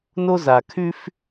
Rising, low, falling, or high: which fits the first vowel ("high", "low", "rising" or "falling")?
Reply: high